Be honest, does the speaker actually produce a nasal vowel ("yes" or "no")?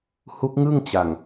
no